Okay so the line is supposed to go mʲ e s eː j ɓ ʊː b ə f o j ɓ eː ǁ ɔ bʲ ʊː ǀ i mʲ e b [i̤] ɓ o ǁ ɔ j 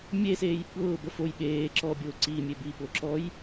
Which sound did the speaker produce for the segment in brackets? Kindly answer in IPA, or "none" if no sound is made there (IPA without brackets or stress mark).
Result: i